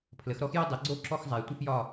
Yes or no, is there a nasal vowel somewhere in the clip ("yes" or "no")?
no